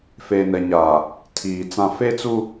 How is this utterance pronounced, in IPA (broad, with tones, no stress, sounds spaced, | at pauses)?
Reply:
f eː˨ n ɛ˨ ɲ aː˨ | tʰ iː˨ t͡s ã˨ f e˦ t͡s u˦